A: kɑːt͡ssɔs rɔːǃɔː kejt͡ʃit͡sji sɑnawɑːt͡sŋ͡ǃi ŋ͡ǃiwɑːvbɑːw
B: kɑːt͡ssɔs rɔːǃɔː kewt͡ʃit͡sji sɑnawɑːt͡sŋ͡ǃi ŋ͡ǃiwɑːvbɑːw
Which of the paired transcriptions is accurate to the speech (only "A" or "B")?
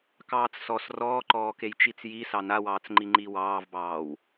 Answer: A